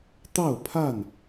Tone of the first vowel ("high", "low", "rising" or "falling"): falling